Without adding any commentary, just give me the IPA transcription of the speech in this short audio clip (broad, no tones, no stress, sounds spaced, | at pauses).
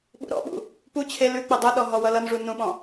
ɓ ṵ ɾ ɔ̰ ɓ ṵ | p u t͡ɕʰ e l ʉ k͡p ɘ dˤ u ɗ ɔ ɦ ɔ w ʌ l ʌ n ʐ u n ũ ɓ ɔ̃